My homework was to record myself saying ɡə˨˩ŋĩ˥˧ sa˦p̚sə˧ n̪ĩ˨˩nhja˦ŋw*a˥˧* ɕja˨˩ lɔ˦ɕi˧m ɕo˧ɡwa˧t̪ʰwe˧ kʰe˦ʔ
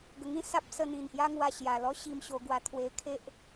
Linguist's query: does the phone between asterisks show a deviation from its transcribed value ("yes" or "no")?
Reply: yes